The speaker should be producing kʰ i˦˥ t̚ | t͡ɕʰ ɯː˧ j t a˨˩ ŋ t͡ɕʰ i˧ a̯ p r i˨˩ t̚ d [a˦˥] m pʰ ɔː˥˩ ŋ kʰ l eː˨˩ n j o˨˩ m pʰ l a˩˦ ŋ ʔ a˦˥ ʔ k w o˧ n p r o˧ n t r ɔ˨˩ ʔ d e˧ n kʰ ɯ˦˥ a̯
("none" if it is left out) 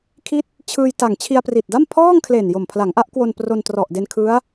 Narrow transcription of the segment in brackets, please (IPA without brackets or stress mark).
a˥˩